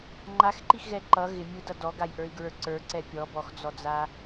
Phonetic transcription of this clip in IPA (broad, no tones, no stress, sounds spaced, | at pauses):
ŋ͡ǃ a x ǃ i x ɣ ɛ ǃ ʌ ɣ ɪ mʲ u d ʌ d ɔ ɡ a j ʔ ə˞ i̯ ɡ ɹ ə˞ ǀ ə˞ ǀ ɛ pʲ ɔ b ɔ x d͡z ɔ d͡z a